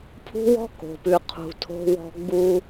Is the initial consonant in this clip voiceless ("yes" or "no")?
yes